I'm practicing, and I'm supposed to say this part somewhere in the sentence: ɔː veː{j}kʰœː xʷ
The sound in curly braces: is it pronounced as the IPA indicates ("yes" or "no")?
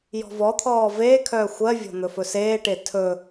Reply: no